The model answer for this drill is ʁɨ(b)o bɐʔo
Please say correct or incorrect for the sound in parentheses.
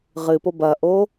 incorrect